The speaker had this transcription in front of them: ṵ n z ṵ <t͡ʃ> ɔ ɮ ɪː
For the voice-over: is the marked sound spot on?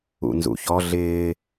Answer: no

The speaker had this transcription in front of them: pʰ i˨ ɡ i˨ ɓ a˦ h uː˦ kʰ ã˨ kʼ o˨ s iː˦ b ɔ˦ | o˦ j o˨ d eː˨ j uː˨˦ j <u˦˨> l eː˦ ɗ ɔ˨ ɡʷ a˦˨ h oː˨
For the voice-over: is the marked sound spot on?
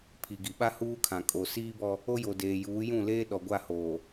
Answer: no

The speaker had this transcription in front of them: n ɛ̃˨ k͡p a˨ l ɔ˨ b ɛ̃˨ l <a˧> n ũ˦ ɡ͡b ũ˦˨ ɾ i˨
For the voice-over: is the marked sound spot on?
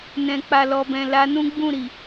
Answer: yes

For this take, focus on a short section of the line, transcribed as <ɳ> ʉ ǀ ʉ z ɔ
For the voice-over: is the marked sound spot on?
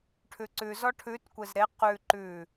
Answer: no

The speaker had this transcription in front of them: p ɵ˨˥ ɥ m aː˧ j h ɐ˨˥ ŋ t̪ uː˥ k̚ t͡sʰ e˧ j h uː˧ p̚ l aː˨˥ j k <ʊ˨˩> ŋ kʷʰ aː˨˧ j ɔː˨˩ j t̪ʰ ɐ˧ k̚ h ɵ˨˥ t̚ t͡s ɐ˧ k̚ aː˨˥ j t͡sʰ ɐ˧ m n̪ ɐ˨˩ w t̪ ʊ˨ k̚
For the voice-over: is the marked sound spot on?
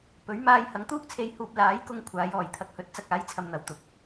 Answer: no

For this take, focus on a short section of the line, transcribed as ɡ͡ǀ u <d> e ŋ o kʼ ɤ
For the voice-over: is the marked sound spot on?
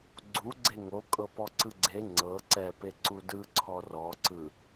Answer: no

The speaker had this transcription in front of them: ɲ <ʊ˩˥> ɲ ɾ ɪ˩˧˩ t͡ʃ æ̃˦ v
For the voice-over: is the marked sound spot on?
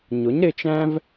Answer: yes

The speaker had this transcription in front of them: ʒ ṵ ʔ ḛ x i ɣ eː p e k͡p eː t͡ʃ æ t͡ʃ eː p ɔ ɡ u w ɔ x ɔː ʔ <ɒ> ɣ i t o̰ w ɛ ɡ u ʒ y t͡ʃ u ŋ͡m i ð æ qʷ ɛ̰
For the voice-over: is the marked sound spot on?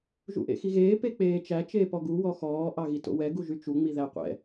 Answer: no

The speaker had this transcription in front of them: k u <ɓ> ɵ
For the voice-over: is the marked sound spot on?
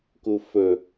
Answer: no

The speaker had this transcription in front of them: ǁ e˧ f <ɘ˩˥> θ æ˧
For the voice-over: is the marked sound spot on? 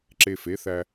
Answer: no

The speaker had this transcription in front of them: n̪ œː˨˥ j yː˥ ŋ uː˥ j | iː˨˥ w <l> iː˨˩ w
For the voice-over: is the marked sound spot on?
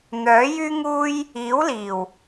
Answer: yes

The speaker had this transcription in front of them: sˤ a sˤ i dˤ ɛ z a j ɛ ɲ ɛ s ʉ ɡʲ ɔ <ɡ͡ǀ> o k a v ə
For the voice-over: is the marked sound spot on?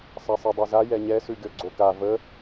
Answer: yes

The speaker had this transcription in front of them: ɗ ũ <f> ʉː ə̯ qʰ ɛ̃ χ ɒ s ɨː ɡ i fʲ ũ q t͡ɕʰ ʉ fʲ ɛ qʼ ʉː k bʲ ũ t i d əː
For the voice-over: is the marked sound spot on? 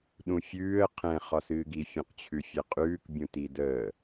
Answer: no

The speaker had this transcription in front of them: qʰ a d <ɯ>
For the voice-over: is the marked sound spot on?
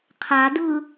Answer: yes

